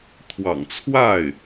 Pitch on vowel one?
low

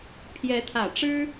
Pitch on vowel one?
rising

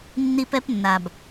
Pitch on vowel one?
high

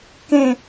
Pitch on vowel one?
falling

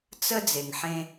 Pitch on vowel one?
high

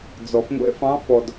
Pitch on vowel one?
low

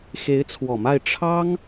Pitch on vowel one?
rising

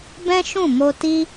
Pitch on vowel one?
high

